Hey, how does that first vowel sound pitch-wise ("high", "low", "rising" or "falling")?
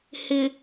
low